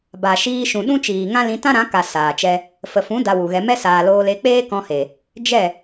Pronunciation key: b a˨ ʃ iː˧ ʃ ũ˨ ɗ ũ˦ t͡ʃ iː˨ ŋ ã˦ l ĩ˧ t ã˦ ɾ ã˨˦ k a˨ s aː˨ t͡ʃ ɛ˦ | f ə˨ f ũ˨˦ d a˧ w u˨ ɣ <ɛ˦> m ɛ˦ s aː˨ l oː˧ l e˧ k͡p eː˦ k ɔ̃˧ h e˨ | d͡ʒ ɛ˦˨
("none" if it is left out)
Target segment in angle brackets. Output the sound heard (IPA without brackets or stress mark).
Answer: ɛ˧